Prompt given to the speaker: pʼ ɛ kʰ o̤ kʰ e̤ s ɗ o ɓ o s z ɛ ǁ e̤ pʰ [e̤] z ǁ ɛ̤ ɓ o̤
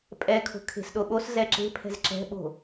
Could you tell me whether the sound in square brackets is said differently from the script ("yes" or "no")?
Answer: yes